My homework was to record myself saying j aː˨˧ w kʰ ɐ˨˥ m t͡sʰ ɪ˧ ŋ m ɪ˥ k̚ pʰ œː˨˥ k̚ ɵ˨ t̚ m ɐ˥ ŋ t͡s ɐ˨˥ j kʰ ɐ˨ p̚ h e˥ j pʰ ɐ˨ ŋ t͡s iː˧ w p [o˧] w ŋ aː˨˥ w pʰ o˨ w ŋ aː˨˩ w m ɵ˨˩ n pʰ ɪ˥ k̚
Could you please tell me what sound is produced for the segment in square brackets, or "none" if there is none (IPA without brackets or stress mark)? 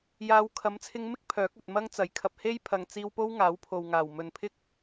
o˥